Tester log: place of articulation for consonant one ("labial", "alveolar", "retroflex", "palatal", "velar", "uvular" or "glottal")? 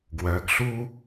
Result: velar